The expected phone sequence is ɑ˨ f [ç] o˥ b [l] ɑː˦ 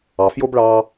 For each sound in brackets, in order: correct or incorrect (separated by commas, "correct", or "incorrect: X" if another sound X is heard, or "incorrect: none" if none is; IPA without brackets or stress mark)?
incorrect: j, incorrect: ɭ